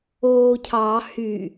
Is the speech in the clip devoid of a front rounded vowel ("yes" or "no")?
no